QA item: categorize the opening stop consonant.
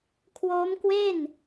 aspirated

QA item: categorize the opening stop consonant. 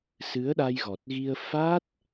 implosive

